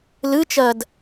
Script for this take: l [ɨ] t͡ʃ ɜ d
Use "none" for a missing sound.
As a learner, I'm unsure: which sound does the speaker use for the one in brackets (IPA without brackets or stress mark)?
ɨ